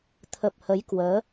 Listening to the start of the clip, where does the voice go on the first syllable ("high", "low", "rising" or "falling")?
low